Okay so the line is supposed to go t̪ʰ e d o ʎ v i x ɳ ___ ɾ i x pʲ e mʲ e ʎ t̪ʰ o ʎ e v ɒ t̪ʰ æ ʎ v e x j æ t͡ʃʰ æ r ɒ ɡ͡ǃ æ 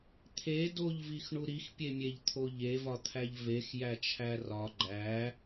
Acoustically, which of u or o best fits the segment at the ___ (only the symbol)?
u